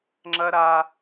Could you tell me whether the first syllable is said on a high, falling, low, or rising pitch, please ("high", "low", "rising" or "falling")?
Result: high